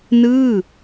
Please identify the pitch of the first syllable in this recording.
falling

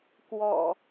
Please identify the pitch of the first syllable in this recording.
low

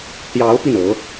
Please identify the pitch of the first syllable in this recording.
rising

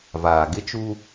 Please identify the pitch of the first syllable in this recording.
low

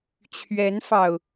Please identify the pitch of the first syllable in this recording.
rising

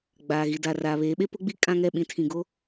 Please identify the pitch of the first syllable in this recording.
low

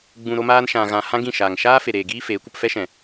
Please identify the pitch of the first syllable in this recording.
low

